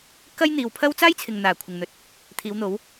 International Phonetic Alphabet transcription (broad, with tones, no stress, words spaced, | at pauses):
kɐ˥j n̪iː˨wpʰɐ˥w t͡saː˥jt͡sʰɪ˨ŋn̪aː˨˩ kʷʰɪ˨ŋn̪ɵ˨˥t̚ | t̪ʰiː˨˧wn̪o˨˥w